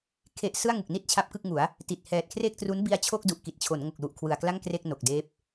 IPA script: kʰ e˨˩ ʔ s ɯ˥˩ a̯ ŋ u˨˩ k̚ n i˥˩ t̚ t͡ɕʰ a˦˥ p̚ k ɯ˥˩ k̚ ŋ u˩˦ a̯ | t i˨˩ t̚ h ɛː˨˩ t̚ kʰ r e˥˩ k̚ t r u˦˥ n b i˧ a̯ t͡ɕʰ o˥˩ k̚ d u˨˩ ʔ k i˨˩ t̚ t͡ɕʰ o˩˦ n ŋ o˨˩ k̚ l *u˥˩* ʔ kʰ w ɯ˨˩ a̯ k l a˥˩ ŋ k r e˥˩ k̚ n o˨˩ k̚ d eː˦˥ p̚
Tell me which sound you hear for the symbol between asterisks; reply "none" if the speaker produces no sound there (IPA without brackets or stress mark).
u˨˩